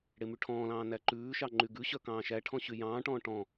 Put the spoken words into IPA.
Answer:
ɽemyʈʰɔ̃ːlɑ̃ː næǃʉːʃɑ ŋ͡ǃyɡʉɕœ kɑ̃ːʃæʈʰɔ̃ ɕyjɑ̃ːʈɔ̃ː ʈɔ̃

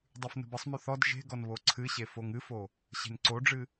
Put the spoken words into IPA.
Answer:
dˤʉfnə̤bəsˤmʉ θɔd ʒe̤ɡɔn βoǀʰɨɕe foŋɨfo | ɕe̤nǀoɖ͡ʐɨ

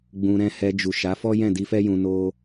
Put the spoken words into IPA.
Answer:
ɡ͡bũ˧ɾɛ̃˦ hɛ˧ d͡ʒu˨ʃa˨˦ fɔ˦jɛ̃˦˨di˧fɛ˦ jũ˧no˦

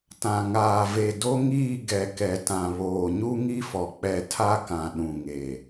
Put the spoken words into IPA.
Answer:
tã˨ŋaː˨ve˨ do˦ŋiː˦˨ ɡɛ˨kɛ˨tã˨βoː˨ ɲu˦ŋi˦fɔ˨ k͡pɛ˨ tʰa˦kã˨ ɗũ˨ŋe˨

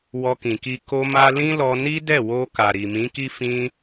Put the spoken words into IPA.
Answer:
wɔ˧kĩ˨ki˧ ko˧ma˧ lĩ˦lɔ˧ ni˦dɛ˦˨wo˧ ka˨ɾi˨mĩ˨˦ki˦ fĩ˧

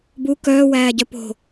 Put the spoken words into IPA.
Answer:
bu kœːwæːɟœ po̤

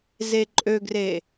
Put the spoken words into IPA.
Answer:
zeǃʼøɡre

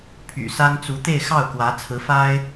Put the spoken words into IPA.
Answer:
pʰy̰˨˩sa˥n t͡su˧˥t̪e˥˧ɪ̯xɑ˥˩ʊ̯kwä˧˥ t͡sʰɹ̩˧˥fa˥ɪ̯

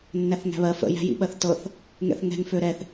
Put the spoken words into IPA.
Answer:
nːæθŋæ̤βɜ fə̰ jæ̤jḭɓɜθtɤθ | ŋɛ̰θŋɛ̤ŋ føɾɛθ

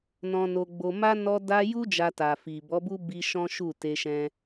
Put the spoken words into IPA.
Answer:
nɔ̃˧no˧ɡ͡bo˧ ma˦ nɔ˧da˧ju˦ d͡ʒa˧ta˨fi˨ bɔ˨˦bu˦bi˧ ʃɔ̃˦ʃu˦˨ te˧ ʃɛ̃˦

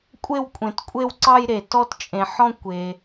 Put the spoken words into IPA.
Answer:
kʷʼe˥˧wkʷʼẽ˩tkʷʼe˥˧wǀɑ˥˧j ɾe˩ tɔ˥˧tt͡ʃʼẽ˩ ħɔ̃˥˧kʷe˩

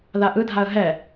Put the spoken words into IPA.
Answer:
ðaʔɯdʱaə̯ ɦɛ

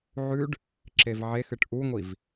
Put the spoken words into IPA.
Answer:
ʕʉɖ | ǁevʕexɨʈ ʔuŋʷiv

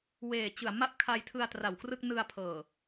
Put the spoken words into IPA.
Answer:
weː˨˩t͡ɕɯ˨˩a̯ ma˥˩p̚kʰa˧jtʰɯ˧a̯ tra˨˩wkrɯ˥˩k̚ nɯ˧a̯pʰɤː˨˩

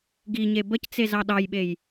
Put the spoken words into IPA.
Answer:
ɡiɲe bəct͡se zɑɗɑjɓej

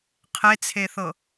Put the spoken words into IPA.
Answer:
qʰet͡sʰeθɤ

